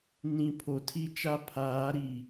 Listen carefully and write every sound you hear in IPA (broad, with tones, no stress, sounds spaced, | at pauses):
n ĩ˨ pʰ o˨ tʰ i˦ t͡ʃ a˦ pʰ aː˨˦ ɾ i˨